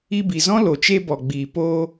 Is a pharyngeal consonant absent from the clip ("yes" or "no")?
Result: yes